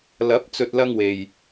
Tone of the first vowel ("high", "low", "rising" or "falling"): rising